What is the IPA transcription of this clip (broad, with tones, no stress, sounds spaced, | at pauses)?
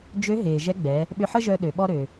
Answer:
d͡ʒ ø˧˥ ɦ eː˩ ʒ ɛ˧˥ ɡ͡b ɛ˩˧ | ɓ ʏ˧ ħ ə˥ ʒ œ˧ ɗ ø˩ ɓ ɔ˥ ɾ ø˩